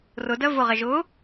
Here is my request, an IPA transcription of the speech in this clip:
r ʊ d ɜ v ʊ ʁ ɛ ʒ ʊ

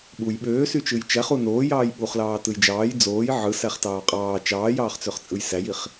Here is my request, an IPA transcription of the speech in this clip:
ɓ u j ɓ øː s y t͡ʃ ɯ j t͡ʃ æ χ u n oː j ɑː j ɓ u χ l ɑː t ɯ j d͡ʒ ɑː j d͡z oː j ʕ ɯ s æ χ t ɑː qʼ ɑː t͡ʃ ɑː j ɑː χ t͡s ø χ t͡sʼ ɯ j s æ j i χ

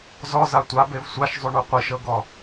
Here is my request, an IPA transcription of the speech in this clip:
z ɔ z a tʷ a b e v sʷ a ʃ zˤ u ɳ u qʷ i ʃ ɤ ɡ ɔ

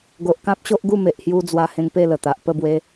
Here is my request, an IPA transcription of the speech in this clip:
ɡ o˨ ʔ k ã˦ p̚ ɕ o˦ ʔ ɡ u˥˧ m e˨ ʔ h j u˧ d͡z w a˧ h ẽ˧ ŋ p e˥˧ l ə˨˩ t̪ a˨ ʔ p ə˥˧ b w e˧

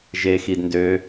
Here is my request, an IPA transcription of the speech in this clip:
ʒ e x i d n d ø

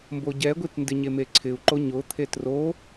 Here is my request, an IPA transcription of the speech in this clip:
m b o ɟ ɛ ɡʷ i t n d ɪ ɲ e m e ǀʰ ɪ u̯ ǃ o ɲ ʊ t̪ʰ e t r o

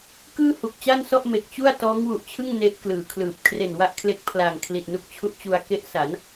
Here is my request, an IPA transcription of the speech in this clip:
k ɯː˥˩ h u˨˩ k̚ t͡ɕ a˥˩ n s ɔ˥˩ ʔ m e˨˩ k̚ t͡ɕ u˥˩ a̯ t ɔː˦˥ ŋ w u˨˩ ʔ t͡ɕʰ ɯ˥˩ ŋ n e˦˥ ʔ k l ɯː˩˦ kʰ l ɯː˨˩ p̚ kʰ r e˨˩ n w a˦˥ ʔ kʰ l e˦˥ k̚ pʰ l aː˨˩ ŋ kʰ l i˨˩ t̚ n u˦˥ k̚ t͡ɕʰ u˦˥ ʔ t͡ɕ u˧ a̯ k e˦˥ ʔ s a˩˦ n

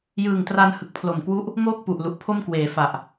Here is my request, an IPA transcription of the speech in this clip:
j ɯː˨˩ ŋ t r a˧ n h ɯ˨˩ k̚ pʰ l o˨˩ m k w u˦˥ ʔ | ŋ oː˥˩ k̚ p u˨˩ ʔ l u˨˩ ʔ pʰ o˥˩ m k w eː˨˩ f a˨˩ ʔ

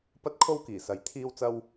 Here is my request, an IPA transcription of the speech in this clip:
p ɐ˥ t̚ kʰ o˥ w k iː˨˩ s ɐ˨˥ j t̪ʰ iː˥ w t͡s ɐ˥ w

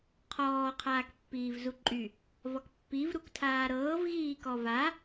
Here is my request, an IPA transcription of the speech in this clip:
qʰ ɔː qʰ aː k pː iː v z u ǃʼ y | v ɔ k pː i v ɾ u k tʰ aː ɾ ɤː v ɣ iː k ɔ v a

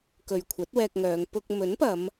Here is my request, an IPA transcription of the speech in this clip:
k ɵ˨ ɥ kʷʰ ɐ˨˥ t̚ w ɛː˧ k̚ ŋ œː˨˧ ŋ p ʊ˧ k̚ m ɵ˨˥ n p ɐ˨˧ m

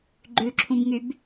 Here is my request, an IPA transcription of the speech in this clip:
ɡ͡ǃ ʉ ǁʰ ũ b ŋ y b

